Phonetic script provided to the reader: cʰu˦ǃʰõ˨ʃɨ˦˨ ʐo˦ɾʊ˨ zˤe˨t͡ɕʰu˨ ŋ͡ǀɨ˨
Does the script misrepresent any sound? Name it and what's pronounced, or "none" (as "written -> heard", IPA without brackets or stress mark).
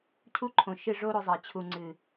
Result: ʊ˨ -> ʊ˧